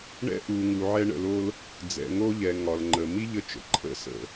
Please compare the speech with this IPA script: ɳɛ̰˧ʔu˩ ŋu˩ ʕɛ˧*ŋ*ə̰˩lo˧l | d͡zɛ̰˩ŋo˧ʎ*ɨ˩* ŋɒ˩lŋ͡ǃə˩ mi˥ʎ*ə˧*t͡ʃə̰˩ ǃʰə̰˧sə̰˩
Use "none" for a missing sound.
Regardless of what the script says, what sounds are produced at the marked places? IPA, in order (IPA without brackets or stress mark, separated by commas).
ɳ, ɛ˩, ə˧